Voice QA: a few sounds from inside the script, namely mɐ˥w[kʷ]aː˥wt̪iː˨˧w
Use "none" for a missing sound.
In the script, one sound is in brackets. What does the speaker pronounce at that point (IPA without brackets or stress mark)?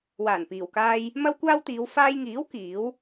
kʷ